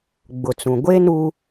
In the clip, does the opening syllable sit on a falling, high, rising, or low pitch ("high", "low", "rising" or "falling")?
low